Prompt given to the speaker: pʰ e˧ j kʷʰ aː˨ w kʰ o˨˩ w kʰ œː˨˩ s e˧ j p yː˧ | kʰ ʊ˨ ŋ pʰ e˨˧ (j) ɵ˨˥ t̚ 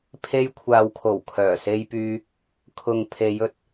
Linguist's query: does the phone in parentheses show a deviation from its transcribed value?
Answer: no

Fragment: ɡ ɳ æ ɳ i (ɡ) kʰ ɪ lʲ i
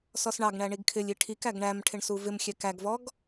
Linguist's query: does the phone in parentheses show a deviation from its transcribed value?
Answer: no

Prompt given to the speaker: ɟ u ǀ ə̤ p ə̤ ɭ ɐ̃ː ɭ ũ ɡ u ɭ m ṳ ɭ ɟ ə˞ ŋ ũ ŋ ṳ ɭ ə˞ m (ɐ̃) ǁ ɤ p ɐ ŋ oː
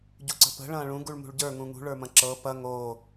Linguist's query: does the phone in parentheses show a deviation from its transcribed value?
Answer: no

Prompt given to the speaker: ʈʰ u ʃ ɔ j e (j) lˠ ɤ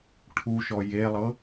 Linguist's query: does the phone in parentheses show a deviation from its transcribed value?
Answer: yes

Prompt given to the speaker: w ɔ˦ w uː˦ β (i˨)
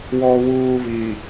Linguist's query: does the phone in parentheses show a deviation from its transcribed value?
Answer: no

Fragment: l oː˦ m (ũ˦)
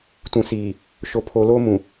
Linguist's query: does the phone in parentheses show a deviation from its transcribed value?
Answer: yes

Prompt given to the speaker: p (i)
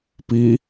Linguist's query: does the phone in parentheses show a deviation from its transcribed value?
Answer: no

